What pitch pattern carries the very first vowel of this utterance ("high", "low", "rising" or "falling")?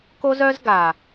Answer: high